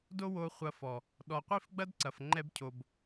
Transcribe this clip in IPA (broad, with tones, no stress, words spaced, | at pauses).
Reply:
do˦wo˧ χʷɐ˧fɔ˨ | ɗɔ˨qʷi˦˨fɡ͡bɐ˦dǀɐ˨f ŋ͡ǃɛ˦bcʰo˧b